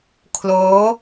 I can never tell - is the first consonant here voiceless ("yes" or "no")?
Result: yes